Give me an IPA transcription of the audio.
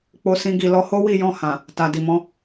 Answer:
k͡p o˦ s ĩ˦ ɡ i˦˨ l ɔ˧ h o˦ w i˦˨ j ɔ̃˧ h ã˨ | t a˨ d i˨ m ɔ̃˨˦

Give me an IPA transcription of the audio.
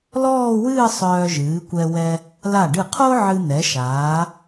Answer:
l ɔː˥˧ w ɨː˥˧ sˤ œː˧ ʒ ɨː˩˧ kʷ ɛ˧ w ɛ˧ | l a˧˩ ɖ ɨ˧˩ qʰ o˥ ʕ ɨ˧ n̪ ɛ˩˧ ʃ aː˩˧

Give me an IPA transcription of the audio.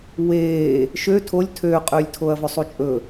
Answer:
w eː | ʃ ø tʰ o lʲ tʰ øː qʼ øː lʲ tʰ o ɐ̯ v ɵ sˤ u t͡ʃʼ ɵ

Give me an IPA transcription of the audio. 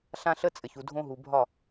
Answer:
ɬ ã˦ ɬ ə˦ t͡sʼ ɘ˨ ç u˨ dʱ õ˦ ɦ u˨ bʱ ɒ˦˨

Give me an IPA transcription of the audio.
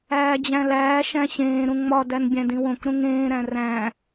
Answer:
æː d͡ʑ æ̃ l æː ʃ æ̃ ɕ ẽː ɾ ũ ŋ͡m ɒ d æ n bʲ æ̃ d ĩ w õ k ɾ ũ ŋ ẽː ɾ æ̃ r æ̃

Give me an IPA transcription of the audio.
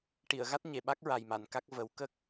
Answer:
ʈ i˨˩˨ ə̯ ɣ a˦˥ t̚ ɲ e˨˩ ɓ a˦˥ k̚ ɹ a˨˩ j m a˨˩˨ n k a˦˥ k̚ v ə˨˩˦ w k ə˦˥ k̚

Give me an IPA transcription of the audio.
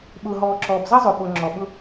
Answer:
ɓ ʊː˨ ɦ ɔː˨ ǁ ɔː˨ b z ʌ˦ zˤ o˨ ɓ o˨ ŋ͡ǁ ɔ˨ ɓ ʊ˦

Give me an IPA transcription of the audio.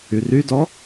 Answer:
y r y d ɔ

